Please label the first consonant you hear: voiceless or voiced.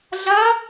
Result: voiced